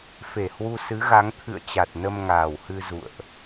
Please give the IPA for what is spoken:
f e˧˩ h w u˧ s ɨ˨˦ ɣ a˨˦ ŋ t̪ʰ ɨ̰˧˨ ə̯ t͡ɕ a˨˩ t̚ n ə˧ m ŋ aː˨˩ w h ɨ˧ z ṵ˧˨ ə̯ ʔ

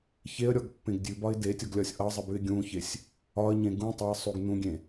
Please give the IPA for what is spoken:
ç e ə̯ ɾʲ ɔ ɡ pː ẽ ɡ dʲ ʉ b ɒ ɪ̯ d e tʲ ɔ ɡ lʲ ɒ sʲ ʔ ʌ zˤ ɪ b ʉ ɪ̯ ɡʲ ũ ç e sʲ | ɒ ə̯ ɲ ẽ ɡ ũ tˤ ɪ ə̯ sˤ u ɡ n ũ ɡʲ ẽ

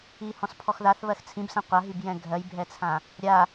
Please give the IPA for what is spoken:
i h ɔ̃ s pʰ ɔ x ð a θ β ɜ x t͡sʰ ĩ b s ɛ̃ qʷ a ɦ i b j ɛ̃ ɡʱ ɜ j bʱ ɛ t͡sʰ ã | ɾʲ a

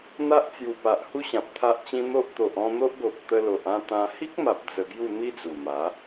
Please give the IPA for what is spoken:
n̪ a˦ ʔ t͡s j u˨˩ p a˨ ʔ h u˦ ɕ ã˨ p̚ t̪ʰ a˦ ʔ t͡ɕ ĩ˦ n̪ o˦ ʔ t̪ o˨ ʔ ɔ̃˥˧ n̪ o˦ ʔ ɡ o˨ p̚ t̪ ə˧ l o˨ ʔ ã˥˧ t̪ ã˧ h i˦ k̚ m a˨ p̚ d͡z ə˧ ɡ j u˥˧ n̪ i˦ d͡z u˨˩ m a˨˦

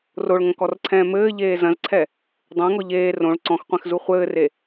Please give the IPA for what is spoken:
r o ɭ ŋ ɐ̃ k ɔ r ǀʰ ɛ̃ː m ɘː ʎ eː z ɐ̃ z ǀʰ ɛ | dˤ ẽ ŋ ɔ ʎ eː r õ ɭ ǀ ɔ̃ x qʷ ɛ̃ x z u χʷ ɘː r e

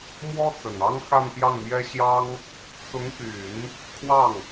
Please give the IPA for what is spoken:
m w ɔ˥ t͡s ə˨˩ n ɑ˥ ŋ x a˥˧ n p j ɑ˥˩ ŋ m j ɛ˥ ɕ j ɑ˥ ŋ | t͡s ʊ˧˥ ŋ p y˨˩˦ n | kʰ w ɑ˥˩ ŋ

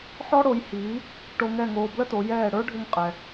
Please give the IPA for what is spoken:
ħ ɔ˥ ɽ o˩˥ j h iː˩˥ | ʈ o˧ ŋ ɛ˥˩ ŋ oː˧ b l ə˥ t o˩˥ j ɛː˥˩ ɽ ə˞˥ ɖʱ ʏ˧ ŋ qʼ ɛ˩

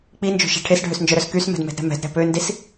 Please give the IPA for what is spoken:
k͡p i n d͡ʒ o̤ ʃ ɛ̤ ʈʰ e s ɖʱ ø s n d͡ʒ œ ɾ œ s k y s m ɛ̤ d m ɛ̤ d ɾ ɛ̤ m ɛ̤ d ɾ ɛ̤ p ø n d i s

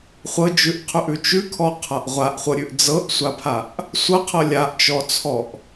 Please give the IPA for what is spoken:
χʷ ɤ d͡ʒ ʉ ʔ qʰ ʉ ʔ ʉ t͡ʃ ʉ kʰ ɔ qʰ a ʔ ʁʷ a ʔ χʷ ɤ ɾʲ ʉ ʔ d͡z ɤ ʔ sʷ a pʰ a ʔ | sʷ ɤ qʰ ɤ lʲ a ʔ t͡ʃ ɔ t͡sʰ ɔ ʔ

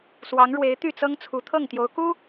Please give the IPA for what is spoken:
s w ɑ˧˥ ŋ ɻ w e˧˥ ɪ̯ t̪ y˥˩ t͡s ɤ˥ ŋ t͡sʰ u˧˥ t̪ʰ ɤ˥˩ ŋ t̪ j o˧˥ ʊ̯ k u˥

